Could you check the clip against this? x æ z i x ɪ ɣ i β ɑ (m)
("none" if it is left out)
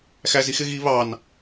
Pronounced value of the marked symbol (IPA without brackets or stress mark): n